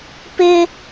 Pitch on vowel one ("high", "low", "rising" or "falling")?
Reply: high